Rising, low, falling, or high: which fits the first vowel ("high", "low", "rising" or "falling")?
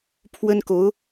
high